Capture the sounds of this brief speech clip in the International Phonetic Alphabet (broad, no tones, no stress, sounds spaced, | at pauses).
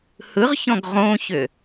h ɯ ʁ ç ɔ̃ ɡ ʁ õ ç ʏ